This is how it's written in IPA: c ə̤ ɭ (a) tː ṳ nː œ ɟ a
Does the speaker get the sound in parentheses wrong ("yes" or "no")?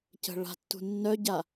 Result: yes